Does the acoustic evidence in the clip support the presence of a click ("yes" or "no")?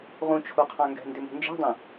no